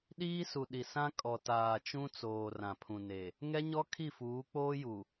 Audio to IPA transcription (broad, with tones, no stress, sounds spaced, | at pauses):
ɗ iː˦ s u˨ ɗ i˨ s ã˦ kʼ ɔ˨ t aː˨ t͡ʃ ũ˦ t͡s oː˨ r ã˨ pʰ ũ˨ n e˨ | ŋ ɛ˦ ɲ ɔ˦ kʰ i˦˨ f uː˨˦ k͡p oː˦ j u˨